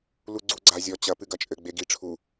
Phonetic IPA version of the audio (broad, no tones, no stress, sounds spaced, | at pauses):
l u ɡ͡ǀ u ɡ͡ǀ a zʲ ɔ t͡ɕ ɐ p ɨ ɡ ɐ t͡ʃʼ ɘ ɡ͡b e ɡ i ʈ͡ʂʰ u